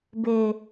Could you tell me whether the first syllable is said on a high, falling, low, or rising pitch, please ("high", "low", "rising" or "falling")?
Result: low